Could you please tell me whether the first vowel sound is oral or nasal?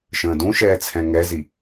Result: nasal